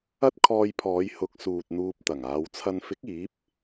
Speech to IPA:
ɐ˥t̚kʰɔː˧jpʰɔː˨˧j hʊ˨˥k̚suː˨t̚ n̪uː˧p̚t̪ɐ˨˩ŋaː˨˧w t͡sʰɐ˨nfɪ˨˥k̚ iː˨˥p̚

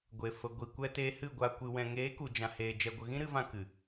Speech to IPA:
ɡʷe˨ fə˨ ɡʷi˨ kʷɛ˧teː˧hɨ˦˨ɡʷa˧ kʷɨ˨wɛ̃˨ ŋeː˨˦ku˨d͡ʒã˨heː˨ d͡ʒɛ˧ɡʷə˧ ɣĩ˦ɾɨ˧vã˧ kɨ˨

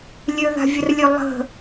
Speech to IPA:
lʲøða̤vʲərlʲø lˠə̤

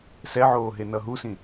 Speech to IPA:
sɛʕoː ɦenʌɦusĩ

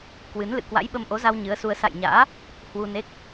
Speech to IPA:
kwɨ˨˦nlɨ̰˧˨ kwa̰˧˥jɓə˧mʔo˨˦za˧w ɲɨ˨˦ə̯su˧ə̯ sa̰˧˨jɲa̰ː˧˥ | hwu˧ne˦˥k̚

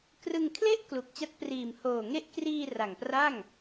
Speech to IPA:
krɯ˧ŋkʰle˥˩ʔ klu˨˩k̚t͡ɕa˦˥t̚priː˨˩m hoː˨˩ŋe˦˥ʔ kriː˧ ra˨˩ŋpra˥˩ŋ

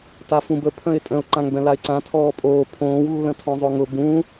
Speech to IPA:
tafũbə pʰə̃ɪ̯tʼə̃ʊ̯ ǃãŋbɛ̃laɪ̯ǀã tʰɔːpʼoː pʰõːw lːə̃tʰɔ̃zˤoŋʊ bũ

